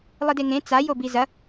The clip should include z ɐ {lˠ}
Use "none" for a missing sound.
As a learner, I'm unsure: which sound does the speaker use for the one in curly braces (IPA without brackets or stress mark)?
none